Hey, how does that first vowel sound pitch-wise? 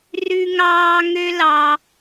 low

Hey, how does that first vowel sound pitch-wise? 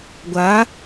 rising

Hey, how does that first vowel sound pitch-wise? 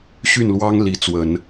falling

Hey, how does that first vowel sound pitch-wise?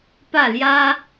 falling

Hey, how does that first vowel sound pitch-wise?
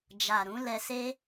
low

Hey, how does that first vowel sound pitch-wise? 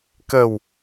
low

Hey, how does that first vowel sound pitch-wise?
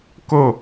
falling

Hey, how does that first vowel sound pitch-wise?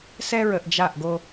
high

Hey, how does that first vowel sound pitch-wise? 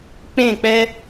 falling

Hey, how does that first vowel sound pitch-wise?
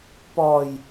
low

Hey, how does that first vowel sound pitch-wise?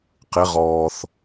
rising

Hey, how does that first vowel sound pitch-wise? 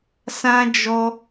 high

